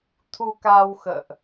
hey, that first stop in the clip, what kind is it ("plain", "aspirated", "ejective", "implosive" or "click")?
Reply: aspirated